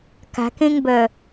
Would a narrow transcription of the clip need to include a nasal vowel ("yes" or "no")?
yes